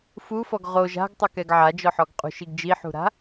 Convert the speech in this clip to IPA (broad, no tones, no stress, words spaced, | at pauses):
fufɔɡ ʁo ʒa̤ɡtˤɘkɛɡ ʕad͡ʒɔħɔɡ qʼṳʃiɡ d͡ʒiħṳɾa̤